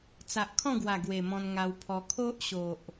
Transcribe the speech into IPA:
t͡sa˨ʔ kʰɔ̃˥˧ɡwa˨˩ ɡwe˨˩mɔ̃˧nŋa˧wpʰɔ˧ kʰo˦ʔɕo˨ʔ

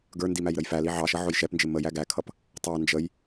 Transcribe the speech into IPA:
ɡə˞ndi mæjɾəjfæli ʕɑʃʌ ʕʊjʃɛpnd͡ʒɪ mə jæɡækʰʌp | tˤɑ nd͡ʒəj

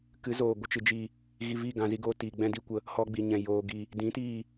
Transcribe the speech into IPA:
kɨ˨˦zoː˨ ɡʷə˦t͡ʃɨ˨ d͡ʒi˨ | ɣi˧vi˦˨ ɡã˧zi˦ɡoː˦ tiː˨ɡ͡bɛ̃˦di˧kʷə˧ | hɔ˧ɡ͡bi˨ ɲɛ̃˨joː˨ ɡi˨ | dĩ˨˦tiː˦˨

